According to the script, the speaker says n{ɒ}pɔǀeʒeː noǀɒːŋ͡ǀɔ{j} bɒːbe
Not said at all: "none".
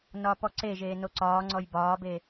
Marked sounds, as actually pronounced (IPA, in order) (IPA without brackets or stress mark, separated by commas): ɒ, j